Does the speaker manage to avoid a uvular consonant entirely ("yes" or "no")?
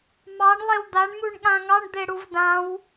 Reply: yes